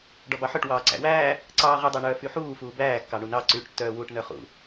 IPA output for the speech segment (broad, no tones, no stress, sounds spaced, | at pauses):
ɖ ɔ b ɑ ħ œ ʈ w ɑː ǀ æ̰ w æː | ǀ ɑː ʁ y dˤ æ ɳ œː f y ħ uː f uː b æː kː ɑ ɳ u n ɑ ǀ yː ʈ tː œː w uː ʈ n œ χ ṵ